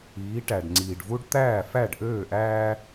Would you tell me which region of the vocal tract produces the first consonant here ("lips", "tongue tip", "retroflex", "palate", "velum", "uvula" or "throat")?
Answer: retroflex